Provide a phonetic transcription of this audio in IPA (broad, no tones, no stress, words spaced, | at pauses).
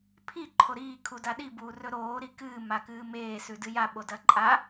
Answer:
pʰi ǃʰoɾiː kʰudaɗi buːrɵɾoː ɾikɨː makɨːmeː sʉdɨja ɓodɐǃʼa